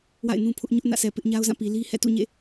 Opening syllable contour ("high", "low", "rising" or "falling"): falling